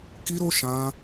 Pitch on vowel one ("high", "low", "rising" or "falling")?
high